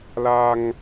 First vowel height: low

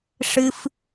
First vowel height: high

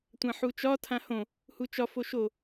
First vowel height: low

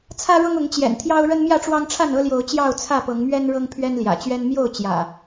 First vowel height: low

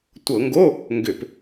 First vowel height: mid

